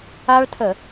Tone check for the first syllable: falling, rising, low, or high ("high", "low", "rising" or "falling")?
high